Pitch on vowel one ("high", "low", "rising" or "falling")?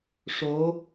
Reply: rising